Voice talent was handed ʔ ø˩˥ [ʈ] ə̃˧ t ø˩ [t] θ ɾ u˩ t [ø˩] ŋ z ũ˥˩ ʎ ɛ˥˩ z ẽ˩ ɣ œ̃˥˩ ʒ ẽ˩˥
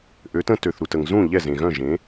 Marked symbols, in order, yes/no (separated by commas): no, no, no